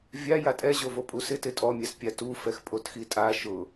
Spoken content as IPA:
vʲ a j a tʼ ɛ ʑ o v o pʼ u s ɪ t ɪ tʼ ɔ mʲ a s pʲ a t u f ɛ x pʼ o t x i tʼ a ʃ ʊ

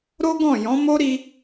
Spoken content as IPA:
ɾ o˦ ɡ ɔ̃˦˨ j ɔ̃˨˦ m o˦ ɾ i˧

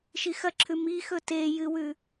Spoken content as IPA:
ʃ i x ɐ ǁʰ ʉ m i x ɵ t e j ɨ w ʉ

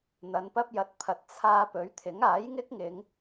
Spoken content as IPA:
n̪ ɐ˨˧ n p ɐ˥ p̚ j ɐ˨˥ t̚ pʰ ɐ˨ t̚ t͡sʰ aː˧ p ɵ˨˥ ɥ t̪ʰ ɪ˨˥ ŋ aː˨˥ j ŋ ɪ˥ k̚ ŋ ɪ˨˧ ŋ

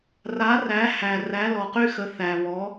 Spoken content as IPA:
r a˨˥ r æ˨˥ h æ˨ r æ˨˥ l ɔ˨ q y˥ x ə˨˥ θ æ˨ β ɔ˨˥

